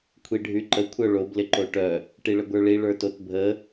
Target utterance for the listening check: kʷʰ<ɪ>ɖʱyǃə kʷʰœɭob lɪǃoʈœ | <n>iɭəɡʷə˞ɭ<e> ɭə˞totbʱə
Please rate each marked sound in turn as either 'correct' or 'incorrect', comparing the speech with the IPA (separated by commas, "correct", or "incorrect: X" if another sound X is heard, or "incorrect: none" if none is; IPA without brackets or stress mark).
incorrect: i, incorrect: ʈ, incorrect: i